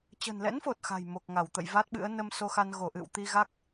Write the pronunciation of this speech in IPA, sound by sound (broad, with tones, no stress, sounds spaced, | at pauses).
t͡ɕ ə̤˨˩ n l ɛ̰˧˥ n f o˨˩ t̚ x a̤˨˩ j m o˨˩ k̚ ŋ a˧˩ w t̪ ə̰˧˨ j v a˦˥ t̚ ɓ ɨ̰˧˥ ə̯ n ə˧ m s o˧ x a˧ n ɣ o˧˩ ʔ ɨ̰˧˨ w t̪ i˧ ɣ a˦˥ k̚